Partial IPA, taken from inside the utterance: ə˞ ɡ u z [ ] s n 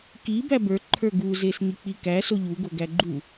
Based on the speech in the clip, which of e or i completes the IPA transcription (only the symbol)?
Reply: e